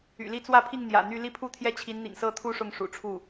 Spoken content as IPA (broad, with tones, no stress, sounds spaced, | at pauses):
y̰˨˩ l i˥˧ t͡s w ä˥˧ pʰ i˥˩ ŋ n̪ j ä̰˨˩ n̪ y˥˧ l i˥˧ pʰ u˥˧ t̪ʰ j ɛ˥˩ t͡ɕʰ i˧˥ n n̪ ḭ˨˩ ŋ s ɤ˥˧ t̪ʰ u˥˧ ʂ ʊ˥˩ ŋ ʂ ṵ˨˩ ʈ͡ʂʰ u˥˩